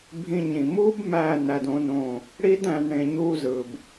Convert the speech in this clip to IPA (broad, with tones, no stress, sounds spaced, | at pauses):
bʱ ĩ˧ ɲ ĩ˨ m uː˦ b m æ˦˨ n æ˧ d õ˦ n õ˦˨ | ɽ i˦ d æ̃˧ n ɽ ẽ˧ ɲ uː˦ z ɯ˨ b